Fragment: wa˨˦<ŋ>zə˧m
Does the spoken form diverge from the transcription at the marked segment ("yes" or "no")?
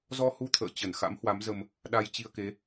yes